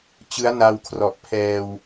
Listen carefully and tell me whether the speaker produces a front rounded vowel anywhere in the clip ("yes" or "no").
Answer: no